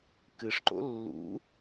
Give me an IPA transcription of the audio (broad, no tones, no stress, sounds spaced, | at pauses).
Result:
k ɨ ʂ ǃ o̰ lː ṵ